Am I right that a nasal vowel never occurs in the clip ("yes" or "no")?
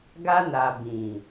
no